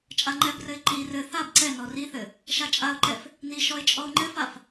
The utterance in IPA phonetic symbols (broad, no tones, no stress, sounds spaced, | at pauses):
t͡ʃʼ a ŋ͡ǃ ɛ b r ɘ ɪ̯ ǃ i r ɘ θ a b ǀ ɛ n ɔ r i θ ɘ | ʃ a t͡ʃʼ a ʊ̯ ǃ ɛ f | n i ʃ ɔ ɪ̯ t͡ʃʼ ɔ ʊ̯ ŋ͡ǃ ɘ f a f